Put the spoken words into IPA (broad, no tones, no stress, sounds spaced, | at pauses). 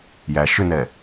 j æ ʃ ʏ n ɛ